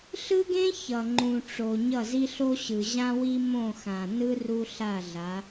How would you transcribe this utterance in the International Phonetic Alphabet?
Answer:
ɬɯ˦ɡẽ˦ çʌ˨ŋ͡ǃũ˨ʈ͡ʂo˨ ɲʌ˦˨zi˦ɬo˦ɕɯ˨ ʑã˦wi˦ mõ˦˨ xã˨nɯ˦ ru˦ ɬa˦˨ɮa˨˦

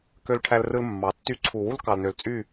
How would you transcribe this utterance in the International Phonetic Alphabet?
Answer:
kø˦lʈʰæ˦lrɯ˦l mːɑ˨ tːy˧ǀʰu˨ wu˦l kɑ˨lnø˨lt͡sʼy˦˨

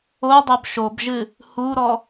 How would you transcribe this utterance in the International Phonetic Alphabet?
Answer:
odˤob ʃobʒɨ | huɾɔ

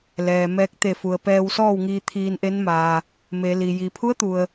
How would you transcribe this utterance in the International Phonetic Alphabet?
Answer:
lɛː˩mɛː˧k̚ t̪e˧˩fu˩ə̯ pɛː˧wsɔː˥˨wŋiː˧ t̪ʰiː˧nʔe˧˥nmaː˩ | me˩˧li˩ ji˩pʰu˧˥ə̯t̪u˩ə̯

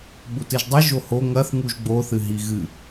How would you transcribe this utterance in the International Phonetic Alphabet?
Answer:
ɓutɨʒdˤi ʒoho ŋɐθ ŋuʒɡ͡bo θɨɦiɣɨ

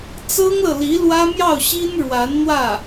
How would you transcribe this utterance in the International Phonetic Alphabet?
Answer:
t͡sɤ˥ŋlɤ˨li˧˥ lwä˥mjɑ˥˩ʊ̯ɕi˥n ɻwa˧˥nn̪wä˥˩

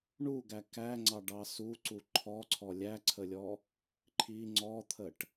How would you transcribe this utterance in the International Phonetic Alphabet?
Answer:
ɳuɡæ kæŋ͡ǀɑɖɑ suǀu ǃʰɔǀʰɔ lʲæǀʰəlʲɔ | ǃʰi ŋ͡ǀɔt̪ʰəʈ

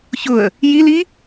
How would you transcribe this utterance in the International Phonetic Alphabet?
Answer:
çʊə̯ | jili

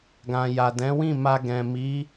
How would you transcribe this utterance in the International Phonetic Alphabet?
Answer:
ɡã˨ja˨dɛ̃˨˦wĩ˦˨ ma˧ɡɛ̃˨mi˨˦

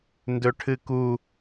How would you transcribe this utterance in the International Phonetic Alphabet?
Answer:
ndɵʈʰɨku

